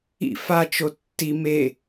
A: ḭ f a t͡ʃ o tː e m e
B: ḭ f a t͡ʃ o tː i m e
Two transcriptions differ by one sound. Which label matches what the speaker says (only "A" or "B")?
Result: B